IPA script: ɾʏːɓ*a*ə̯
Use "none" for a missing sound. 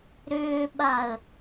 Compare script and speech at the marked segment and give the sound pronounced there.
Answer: a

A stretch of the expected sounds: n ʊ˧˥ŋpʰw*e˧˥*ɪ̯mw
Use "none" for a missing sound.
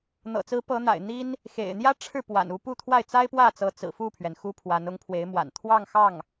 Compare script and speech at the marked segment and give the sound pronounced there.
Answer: e˧˥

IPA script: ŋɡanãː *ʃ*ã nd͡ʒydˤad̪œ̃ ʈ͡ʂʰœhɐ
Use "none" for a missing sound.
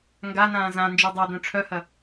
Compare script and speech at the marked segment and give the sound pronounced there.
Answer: z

